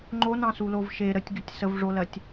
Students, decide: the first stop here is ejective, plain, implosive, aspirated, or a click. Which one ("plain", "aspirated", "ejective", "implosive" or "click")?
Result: click